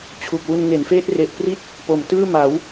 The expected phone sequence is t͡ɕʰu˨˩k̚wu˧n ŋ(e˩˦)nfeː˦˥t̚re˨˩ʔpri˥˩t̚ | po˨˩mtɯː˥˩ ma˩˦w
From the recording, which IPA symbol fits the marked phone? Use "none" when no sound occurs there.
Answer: e˩˦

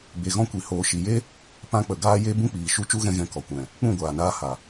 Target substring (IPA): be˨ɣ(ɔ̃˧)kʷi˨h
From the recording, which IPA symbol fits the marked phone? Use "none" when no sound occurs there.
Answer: ɔ̃˧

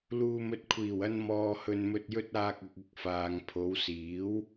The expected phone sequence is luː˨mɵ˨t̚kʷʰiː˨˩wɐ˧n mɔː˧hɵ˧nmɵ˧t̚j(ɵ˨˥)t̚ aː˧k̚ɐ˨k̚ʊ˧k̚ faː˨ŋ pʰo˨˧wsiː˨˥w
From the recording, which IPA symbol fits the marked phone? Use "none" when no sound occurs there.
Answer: ɵ˥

